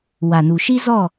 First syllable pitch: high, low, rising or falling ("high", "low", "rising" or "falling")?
low